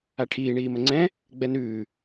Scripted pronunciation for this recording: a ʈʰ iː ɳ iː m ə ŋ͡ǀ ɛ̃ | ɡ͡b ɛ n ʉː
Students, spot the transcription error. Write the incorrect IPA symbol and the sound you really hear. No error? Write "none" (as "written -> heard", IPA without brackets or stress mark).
none